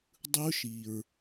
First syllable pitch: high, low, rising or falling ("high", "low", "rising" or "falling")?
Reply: high